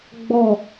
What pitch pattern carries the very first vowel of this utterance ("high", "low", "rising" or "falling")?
falling